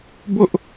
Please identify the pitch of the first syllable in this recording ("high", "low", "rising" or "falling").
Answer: high